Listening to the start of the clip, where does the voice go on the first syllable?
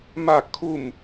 falling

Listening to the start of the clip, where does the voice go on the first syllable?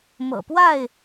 low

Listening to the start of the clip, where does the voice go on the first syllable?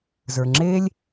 low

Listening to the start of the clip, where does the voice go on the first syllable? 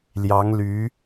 rising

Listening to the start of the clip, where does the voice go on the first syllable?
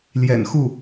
low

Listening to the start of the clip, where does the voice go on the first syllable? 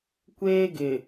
high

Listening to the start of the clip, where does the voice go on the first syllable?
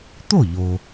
falling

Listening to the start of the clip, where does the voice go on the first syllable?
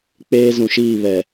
high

